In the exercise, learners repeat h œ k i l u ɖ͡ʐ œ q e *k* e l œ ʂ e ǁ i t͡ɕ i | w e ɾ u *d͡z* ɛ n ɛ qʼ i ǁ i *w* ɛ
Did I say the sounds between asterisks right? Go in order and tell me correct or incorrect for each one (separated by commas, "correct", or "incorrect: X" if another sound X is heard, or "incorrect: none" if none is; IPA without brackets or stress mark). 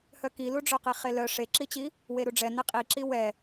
incorrect: χ, incorrect: ɖ͡ʐ, correct